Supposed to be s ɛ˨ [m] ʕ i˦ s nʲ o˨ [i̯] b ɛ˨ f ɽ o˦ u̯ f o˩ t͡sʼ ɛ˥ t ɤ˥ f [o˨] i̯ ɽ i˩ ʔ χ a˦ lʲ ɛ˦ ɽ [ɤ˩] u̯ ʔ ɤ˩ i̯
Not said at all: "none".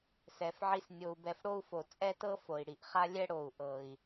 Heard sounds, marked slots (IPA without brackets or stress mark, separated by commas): f, u̯, o˩, o˩